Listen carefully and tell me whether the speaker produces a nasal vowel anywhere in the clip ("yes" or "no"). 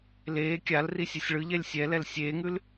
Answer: no